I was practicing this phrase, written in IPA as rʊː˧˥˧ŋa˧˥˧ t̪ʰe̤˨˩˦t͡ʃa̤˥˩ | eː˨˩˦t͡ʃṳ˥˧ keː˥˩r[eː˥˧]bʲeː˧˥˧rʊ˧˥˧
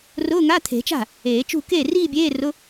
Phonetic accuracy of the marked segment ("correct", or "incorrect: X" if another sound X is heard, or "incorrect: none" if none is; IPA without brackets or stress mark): incorrect: iː˥˧